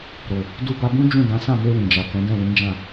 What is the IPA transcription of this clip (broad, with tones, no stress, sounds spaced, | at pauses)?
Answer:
ɾ o˨ | d u˧ b a˧ b ũ˦ d͡ʒ ũ˦˨ d ã˨˦ s ã˦˨ m e˧ w ĩ˨ d͡ʒ a˨ k ɛ̃˨˦ d ɛ̃˦˨ w ĩ˨˦ d͡ʒ ã˦˨